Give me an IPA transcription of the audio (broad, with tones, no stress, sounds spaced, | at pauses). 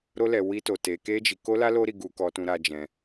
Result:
ɾ o˦ l ɛ˧ w i˦ t o˧ t e˧ k e˦ d͡ʒ i˧ k o˦ l a˦ l o˦ ɾ i˧ ɡ u˧ k ɔ˧ t ũ˧ ɾ a˧ d͡ʒ ɛ̃˧